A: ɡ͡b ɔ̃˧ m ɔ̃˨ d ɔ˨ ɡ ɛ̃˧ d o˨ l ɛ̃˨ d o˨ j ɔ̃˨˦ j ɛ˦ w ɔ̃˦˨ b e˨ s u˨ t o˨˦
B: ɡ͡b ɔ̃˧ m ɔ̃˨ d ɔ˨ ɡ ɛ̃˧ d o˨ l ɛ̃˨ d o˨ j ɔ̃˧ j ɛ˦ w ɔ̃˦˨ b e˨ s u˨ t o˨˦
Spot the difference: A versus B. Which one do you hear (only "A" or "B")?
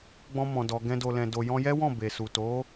B